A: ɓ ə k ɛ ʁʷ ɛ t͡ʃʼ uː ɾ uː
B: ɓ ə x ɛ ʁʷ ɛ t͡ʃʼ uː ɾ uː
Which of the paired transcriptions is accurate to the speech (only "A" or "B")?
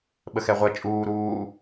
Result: B